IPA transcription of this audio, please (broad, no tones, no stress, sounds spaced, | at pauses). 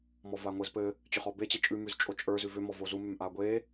m ɔ v a ŋʷ ɘ z p ɘ | t͡ɕ ʏ χ ɔ b e t͡ɕ e t͡ʃʼ ʉ m ʉ z t͡ʃʼ o t͡ʃʼ ə˞ z ʉ v ʏ m ɔ v o z u m ʏ m ʔ a ɡʷ e